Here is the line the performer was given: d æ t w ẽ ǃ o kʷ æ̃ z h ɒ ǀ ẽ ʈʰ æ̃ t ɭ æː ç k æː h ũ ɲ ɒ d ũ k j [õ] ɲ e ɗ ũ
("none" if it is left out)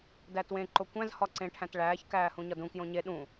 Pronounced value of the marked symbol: õ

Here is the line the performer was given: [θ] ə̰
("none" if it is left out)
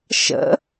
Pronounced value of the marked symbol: ʃ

